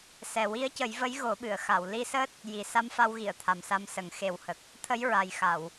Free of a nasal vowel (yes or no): yes